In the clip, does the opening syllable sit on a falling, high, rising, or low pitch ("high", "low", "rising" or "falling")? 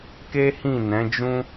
high